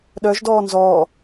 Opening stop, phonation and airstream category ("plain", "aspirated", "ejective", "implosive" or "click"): implosive